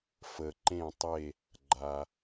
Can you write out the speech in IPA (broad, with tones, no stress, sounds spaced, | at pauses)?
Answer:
f ə˩ ǃ ẽ˧˩ tˤ e˧˩ | ɡ͡ǃ a˩